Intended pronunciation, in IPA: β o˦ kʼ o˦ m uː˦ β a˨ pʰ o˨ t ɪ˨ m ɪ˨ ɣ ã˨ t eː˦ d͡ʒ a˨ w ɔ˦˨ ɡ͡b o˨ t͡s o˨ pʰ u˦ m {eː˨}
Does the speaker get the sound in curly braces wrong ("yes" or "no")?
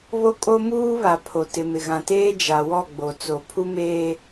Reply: yes